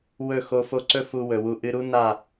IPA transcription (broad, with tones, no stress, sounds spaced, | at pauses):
w ɵ˦˨ x o˧ f o˧ ǀ ɵ˦ f u˧ w ɵ˨ w u˧ ʔ ɨ˧ ɾ u˦ n a˦˨